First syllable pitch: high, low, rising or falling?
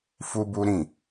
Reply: high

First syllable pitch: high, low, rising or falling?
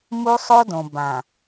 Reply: high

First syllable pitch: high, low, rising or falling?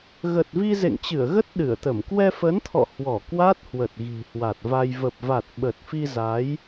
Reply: low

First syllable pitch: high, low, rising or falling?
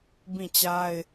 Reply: falling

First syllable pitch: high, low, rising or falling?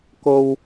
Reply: low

